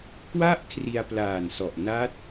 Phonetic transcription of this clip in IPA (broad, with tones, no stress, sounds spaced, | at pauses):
k w a˥˩ ʔ kʰ r i˧ a̯ p l aː˨˩ n s ɔ˨˩ ʔ n a˦˥ t̚